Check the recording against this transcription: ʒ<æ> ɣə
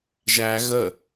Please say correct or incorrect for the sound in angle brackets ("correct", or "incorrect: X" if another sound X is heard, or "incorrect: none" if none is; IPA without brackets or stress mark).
correct